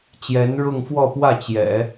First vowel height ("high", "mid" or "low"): mid